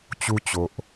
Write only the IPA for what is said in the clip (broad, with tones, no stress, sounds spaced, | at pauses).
t͡ɕ u˦ t͡ɕ o˨ ʔ